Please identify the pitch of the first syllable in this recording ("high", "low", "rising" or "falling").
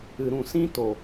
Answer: low